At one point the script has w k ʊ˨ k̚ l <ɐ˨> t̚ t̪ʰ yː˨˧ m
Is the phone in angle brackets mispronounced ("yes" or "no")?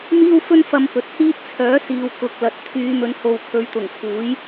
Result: no